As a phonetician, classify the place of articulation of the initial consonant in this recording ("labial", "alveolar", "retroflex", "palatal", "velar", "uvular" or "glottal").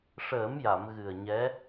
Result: retroflex